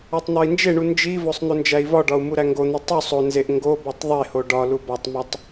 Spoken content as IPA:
ɒ tˤ n̪ ɒ i̯ n d͡ʒ e ɳ u n d͡ʒ i v o sˤ n̪ o n d͡ʒ æ i̯ v ɒ ɖ ɒ u̯ m u ɾ æ ŋ ɡ o n̪ i tˤ u sˤ o n z e ʔ ŋ ɡ o b o tˤ ðˤ e h o ɖ ɒ l u b ɒ tˤ m ɒ tˤ

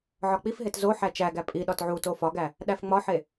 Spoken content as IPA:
ʕ ɒ k͡p i f ɦ e t z o ħ æ t͡ʃ æ ɡ æ pʼ i ɗ ɒ t ʕ u t o f ɒ ɡ æ | ɗ æ f ŋ͡m ɒ ħ e

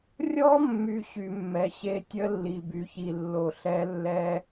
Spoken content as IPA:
rʲ ɔ˦˥ mː y˨ ɕ y˨ mː ɛ˨ ɕ e˦˥ tʲ ə˦˥ lː i˨ b y˨ ç i˨ lː o˨ ɬ ɛ˦˥ lː ɛ˦˥

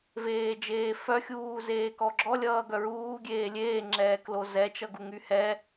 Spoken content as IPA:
v eː d͡ʒ eː f œ xʲ uː z eː k ɔ ɡ͡ǁ ɔ lʲ ʌː ɡ œ ɹ uː ɡʲ eː lʲ eː ŋ͡ǁ ɛː k l o z ɛ t͡ʃ ʌ ɡ u ŋ y h ɛ

